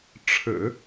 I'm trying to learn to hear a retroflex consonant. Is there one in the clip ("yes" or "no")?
yes